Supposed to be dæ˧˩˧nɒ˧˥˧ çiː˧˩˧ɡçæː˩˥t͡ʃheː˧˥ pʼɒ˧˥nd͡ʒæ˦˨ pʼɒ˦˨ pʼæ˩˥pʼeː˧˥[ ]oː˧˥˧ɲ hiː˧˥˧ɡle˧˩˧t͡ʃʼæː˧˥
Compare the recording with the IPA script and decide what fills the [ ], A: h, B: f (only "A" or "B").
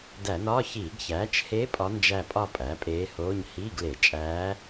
A